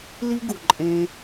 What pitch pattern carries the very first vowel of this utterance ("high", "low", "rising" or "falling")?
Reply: high